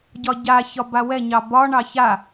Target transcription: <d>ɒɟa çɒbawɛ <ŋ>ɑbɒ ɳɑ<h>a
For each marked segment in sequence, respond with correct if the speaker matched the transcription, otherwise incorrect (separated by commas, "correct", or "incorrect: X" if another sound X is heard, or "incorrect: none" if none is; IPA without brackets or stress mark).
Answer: incorrect: ɟ, incorrect: ɲ, incorrect: ç